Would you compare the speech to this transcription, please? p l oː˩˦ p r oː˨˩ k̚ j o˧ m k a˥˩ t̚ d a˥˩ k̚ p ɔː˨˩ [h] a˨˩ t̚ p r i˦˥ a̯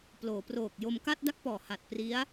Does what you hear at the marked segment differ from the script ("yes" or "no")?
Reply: no